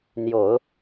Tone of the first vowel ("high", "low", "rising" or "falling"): low